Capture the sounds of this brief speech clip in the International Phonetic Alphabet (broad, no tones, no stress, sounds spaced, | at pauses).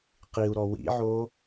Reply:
q i u̯ ɾ ɔ w ḭ ʕ o